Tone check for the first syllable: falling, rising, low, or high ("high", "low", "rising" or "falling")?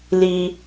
high